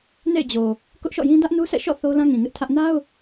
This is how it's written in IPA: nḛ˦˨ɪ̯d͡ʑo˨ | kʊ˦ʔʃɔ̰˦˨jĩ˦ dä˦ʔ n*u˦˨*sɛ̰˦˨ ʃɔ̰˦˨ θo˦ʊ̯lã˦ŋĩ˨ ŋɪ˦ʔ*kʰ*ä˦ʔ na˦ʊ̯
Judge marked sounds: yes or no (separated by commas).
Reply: no, no